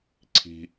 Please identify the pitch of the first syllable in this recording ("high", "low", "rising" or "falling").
low